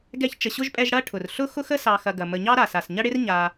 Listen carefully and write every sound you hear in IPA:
ɡ ɛ˥ ç t͡ʃ ə˨ ɕ ʊ˥ ʒ pʼ ɛ˦ ʒ ɽ ɐ˥ ʈʰ ʊ˩ r ɬ ʊ˥ x ʊ˥ x ə˥ s ɑ˨ x ɐ˨ ɡ ɐ˩ m ə˨ ɲ ɑ˥ ɾ a˩ s a˩ s ɲ ɐ˥ ɽ ɪ˥ r ɲ a˨

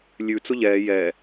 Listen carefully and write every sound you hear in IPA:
lʲ ʉ t͡s ʊ ʎ ɛː j ɛ

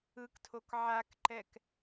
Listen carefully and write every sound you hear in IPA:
ɯ k tʰ o k ʕ a k ǃ ɛ k

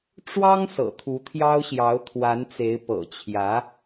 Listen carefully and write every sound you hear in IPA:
ʈ͡ʂ w ɑ˥ ŋ s ɤ̰˨˩ t̪ʰ u˧˥ t̪ʰ j ɑ˥ ʊ̯ ɕ j ɑ˧˥ ʊ̯ t̪ʰ w a˧˥ n t͡s e˧˥ ɪ̯ p ɤ̰˨˩ t͡ɕʰ j ä˧˥

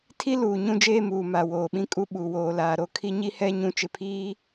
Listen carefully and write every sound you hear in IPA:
tʰ i˦ l uː˨ ɲ ũ˦ d͡ʒ eː˦ m uː˨ m a˨ w oː˨ ɓ ĩ˦ kʼ u˦ ɓ u˨ w oː˨ l aː˨ ɾ o˦ kʰ i˦ ɲ i˦ h ɛ˦ ɲ ũ˦ t͡ʃ ɪ˨ pʰ iː˦

